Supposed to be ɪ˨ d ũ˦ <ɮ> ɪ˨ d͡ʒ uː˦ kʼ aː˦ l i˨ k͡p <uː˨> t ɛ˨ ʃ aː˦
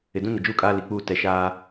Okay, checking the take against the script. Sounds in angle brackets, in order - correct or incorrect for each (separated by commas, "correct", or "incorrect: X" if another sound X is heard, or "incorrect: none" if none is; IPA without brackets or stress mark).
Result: incorrect: n, incorrect: uː˦